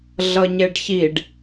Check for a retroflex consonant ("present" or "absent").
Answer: present